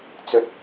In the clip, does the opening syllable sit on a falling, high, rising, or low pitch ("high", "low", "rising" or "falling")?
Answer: rising